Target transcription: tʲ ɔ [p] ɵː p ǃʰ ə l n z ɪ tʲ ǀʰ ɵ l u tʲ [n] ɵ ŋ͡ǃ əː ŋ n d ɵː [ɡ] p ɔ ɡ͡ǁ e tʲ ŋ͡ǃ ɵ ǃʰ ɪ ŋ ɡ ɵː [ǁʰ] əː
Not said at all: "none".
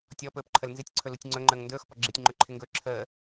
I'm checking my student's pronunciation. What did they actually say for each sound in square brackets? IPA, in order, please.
p, ŋ͡ǀ, x, ǁʰ

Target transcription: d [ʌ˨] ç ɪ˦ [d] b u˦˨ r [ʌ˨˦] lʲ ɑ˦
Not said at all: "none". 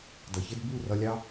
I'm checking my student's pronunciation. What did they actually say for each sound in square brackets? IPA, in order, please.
ʌ˨, d, ʌ˧

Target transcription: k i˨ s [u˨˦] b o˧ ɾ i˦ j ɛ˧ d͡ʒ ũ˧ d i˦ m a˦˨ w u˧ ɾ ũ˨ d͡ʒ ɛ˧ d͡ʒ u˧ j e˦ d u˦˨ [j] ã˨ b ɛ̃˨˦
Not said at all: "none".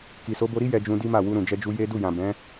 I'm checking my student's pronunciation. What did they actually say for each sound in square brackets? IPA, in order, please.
o˨˦, j

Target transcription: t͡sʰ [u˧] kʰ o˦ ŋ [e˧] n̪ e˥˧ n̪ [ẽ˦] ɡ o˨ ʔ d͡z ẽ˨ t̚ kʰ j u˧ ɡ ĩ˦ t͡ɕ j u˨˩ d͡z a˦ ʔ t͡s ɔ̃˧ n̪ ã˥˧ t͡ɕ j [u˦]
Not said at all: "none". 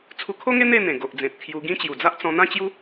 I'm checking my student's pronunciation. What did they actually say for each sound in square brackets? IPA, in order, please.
u˧, e˦, ẽ˨˩, u˦

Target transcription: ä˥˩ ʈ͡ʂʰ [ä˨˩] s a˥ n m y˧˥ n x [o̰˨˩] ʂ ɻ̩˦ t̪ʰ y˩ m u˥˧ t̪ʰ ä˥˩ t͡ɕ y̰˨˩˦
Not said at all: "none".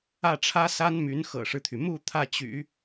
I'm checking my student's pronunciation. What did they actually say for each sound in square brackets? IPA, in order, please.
ä˥, ɤ̰˨˩

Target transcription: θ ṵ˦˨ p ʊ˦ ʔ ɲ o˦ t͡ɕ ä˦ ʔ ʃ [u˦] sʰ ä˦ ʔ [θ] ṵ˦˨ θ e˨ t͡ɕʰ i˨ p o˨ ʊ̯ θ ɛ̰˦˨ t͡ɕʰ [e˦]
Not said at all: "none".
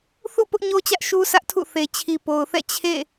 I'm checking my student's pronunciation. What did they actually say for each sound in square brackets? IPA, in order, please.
u˦, tʰ, ḛ˦˨

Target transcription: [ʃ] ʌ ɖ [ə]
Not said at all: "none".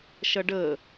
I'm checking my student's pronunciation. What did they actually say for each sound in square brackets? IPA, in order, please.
ʃ, ə

